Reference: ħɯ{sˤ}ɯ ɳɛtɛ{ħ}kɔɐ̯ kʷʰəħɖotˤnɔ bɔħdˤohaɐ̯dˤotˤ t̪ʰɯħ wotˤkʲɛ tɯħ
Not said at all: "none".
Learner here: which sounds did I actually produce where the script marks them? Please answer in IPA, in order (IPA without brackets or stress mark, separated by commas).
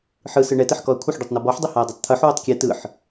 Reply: s, ħ